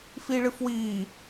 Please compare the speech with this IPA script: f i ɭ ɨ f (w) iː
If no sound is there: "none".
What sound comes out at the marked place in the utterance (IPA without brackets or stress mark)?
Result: w